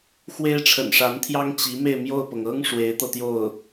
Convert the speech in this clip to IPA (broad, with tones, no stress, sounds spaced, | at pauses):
x w e˥ ɪ̯ ʈ͡ʂʰ ə̰˨˩ n ʂ a˧˥ n t̪ʰ j ɑ˥ ŋ t͡ɕ i˧˥ m e˥˧ ɪ̯ m j o˥˩ ʊ̯ p ɤ˩ ŋ ɤ˥ ŋ ʂ w e˧˥ ɪ̯ t̪ ɤ˧ t̪ j o˥˩ ʊ̯